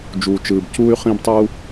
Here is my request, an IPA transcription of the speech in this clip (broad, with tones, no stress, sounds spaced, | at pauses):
d͡ʒ uː˩ t͡ʃ ɯː˩ b c uː˥ y̯ χ ĩ˥ b tˤ u˥